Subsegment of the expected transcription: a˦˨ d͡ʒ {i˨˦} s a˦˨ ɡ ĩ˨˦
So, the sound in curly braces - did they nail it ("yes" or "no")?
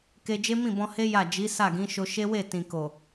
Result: yes